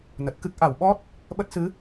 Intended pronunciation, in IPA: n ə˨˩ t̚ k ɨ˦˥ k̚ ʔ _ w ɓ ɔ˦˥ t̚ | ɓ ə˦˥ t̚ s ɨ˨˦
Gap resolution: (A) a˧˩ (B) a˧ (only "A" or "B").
A